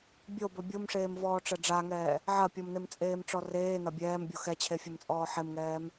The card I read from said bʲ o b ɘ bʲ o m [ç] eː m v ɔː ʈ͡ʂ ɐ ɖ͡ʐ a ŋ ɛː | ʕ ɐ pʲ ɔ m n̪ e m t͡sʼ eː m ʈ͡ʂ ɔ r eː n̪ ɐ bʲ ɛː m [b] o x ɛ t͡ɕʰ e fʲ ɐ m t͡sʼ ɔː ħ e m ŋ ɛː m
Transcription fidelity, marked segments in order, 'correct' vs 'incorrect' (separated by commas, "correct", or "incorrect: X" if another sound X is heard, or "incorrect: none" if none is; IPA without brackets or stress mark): incorrect: ʂ, incorrect: bʲ